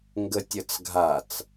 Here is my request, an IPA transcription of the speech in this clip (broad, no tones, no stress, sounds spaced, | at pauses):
ŋ ɡ ə tʲ ə t͡s ɡʱ a t͡s